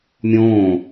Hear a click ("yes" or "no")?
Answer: no